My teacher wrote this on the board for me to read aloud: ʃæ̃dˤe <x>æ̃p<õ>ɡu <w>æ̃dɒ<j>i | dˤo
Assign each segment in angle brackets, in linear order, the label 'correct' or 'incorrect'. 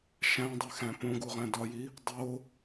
correct, correct, incorrect, correct

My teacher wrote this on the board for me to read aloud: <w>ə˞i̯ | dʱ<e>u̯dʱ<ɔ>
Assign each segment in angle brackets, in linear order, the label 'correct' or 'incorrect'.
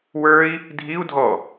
correct, incorrect, correct

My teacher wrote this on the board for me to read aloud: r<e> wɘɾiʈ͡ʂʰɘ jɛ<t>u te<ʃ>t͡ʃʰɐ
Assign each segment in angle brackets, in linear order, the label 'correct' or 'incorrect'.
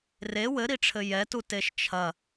correct, correct, correct

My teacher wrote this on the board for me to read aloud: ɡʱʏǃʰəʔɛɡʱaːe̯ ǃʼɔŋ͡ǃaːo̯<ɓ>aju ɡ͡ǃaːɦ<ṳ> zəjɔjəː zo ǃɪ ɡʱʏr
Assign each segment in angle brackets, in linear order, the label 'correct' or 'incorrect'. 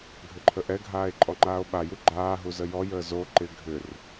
correct, incorrect

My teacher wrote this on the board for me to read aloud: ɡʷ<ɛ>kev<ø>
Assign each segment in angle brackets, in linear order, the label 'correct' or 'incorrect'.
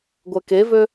correct, correct

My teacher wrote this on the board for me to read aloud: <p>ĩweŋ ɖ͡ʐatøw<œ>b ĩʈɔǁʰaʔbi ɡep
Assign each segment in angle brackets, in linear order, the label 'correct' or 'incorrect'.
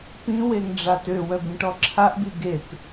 correct, correct

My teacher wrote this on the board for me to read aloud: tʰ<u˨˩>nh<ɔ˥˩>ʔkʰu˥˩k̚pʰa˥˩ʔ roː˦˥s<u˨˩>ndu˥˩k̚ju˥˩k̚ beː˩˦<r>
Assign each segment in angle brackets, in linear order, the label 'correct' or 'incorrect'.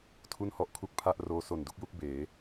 incorrect, correct, incorrect, incorrect

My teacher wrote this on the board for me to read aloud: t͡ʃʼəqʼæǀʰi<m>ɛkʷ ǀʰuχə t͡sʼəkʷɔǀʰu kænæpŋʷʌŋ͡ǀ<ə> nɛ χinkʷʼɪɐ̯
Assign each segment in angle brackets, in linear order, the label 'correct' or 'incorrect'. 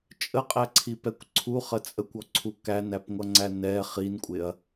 incorrect, incorrect

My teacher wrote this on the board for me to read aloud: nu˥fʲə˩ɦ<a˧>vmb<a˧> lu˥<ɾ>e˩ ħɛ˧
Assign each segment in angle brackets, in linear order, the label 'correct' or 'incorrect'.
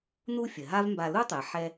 incorrect, correct, incorrect

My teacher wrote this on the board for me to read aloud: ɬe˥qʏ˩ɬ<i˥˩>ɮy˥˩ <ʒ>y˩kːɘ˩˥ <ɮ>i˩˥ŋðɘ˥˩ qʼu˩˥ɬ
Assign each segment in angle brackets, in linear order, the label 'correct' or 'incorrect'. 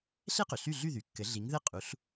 incorrect, incorrect, correct

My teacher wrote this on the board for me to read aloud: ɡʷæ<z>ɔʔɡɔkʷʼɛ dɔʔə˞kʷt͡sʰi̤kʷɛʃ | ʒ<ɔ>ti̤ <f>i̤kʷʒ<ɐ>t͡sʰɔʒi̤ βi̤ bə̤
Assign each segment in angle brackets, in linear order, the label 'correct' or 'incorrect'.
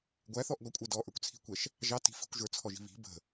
incorrect, incorrect, correct, incorrect

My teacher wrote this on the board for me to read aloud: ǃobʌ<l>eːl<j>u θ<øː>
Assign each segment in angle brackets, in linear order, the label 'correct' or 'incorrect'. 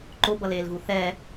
correct, incorrect, incorrect

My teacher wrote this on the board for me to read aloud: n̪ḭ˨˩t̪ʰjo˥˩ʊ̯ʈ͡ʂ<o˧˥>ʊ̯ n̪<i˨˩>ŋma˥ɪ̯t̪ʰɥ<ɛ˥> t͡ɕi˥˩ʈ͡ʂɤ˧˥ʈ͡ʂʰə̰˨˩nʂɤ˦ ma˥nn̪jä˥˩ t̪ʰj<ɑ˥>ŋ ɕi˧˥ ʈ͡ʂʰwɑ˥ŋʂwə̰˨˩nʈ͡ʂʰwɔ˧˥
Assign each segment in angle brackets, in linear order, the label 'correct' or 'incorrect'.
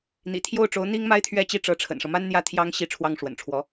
correct, incorrect, incorrect, correct

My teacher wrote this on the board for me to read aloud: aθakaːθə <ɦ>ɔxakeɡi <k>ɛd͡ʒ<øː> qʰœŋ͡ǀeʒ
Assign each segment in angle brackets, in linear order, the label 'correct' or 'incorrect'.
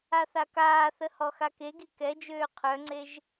incorrect, correct, correct

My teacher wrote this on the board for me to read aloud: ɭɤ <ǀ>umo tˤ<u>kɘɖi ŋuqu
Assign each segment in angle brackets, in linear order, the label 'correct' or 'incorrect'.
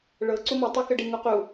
correct, incorrect

